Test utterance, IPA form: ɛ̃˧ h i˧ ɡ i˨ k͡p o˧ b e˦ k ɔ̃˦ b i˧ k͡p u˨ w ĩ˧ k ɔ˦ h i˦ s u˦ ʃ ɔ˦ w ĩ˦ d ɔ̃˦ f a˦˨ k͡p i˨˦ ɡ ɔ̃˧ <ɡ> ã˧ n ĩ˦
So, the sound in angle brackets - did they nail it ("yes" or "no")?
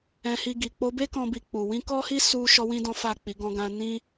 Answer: yes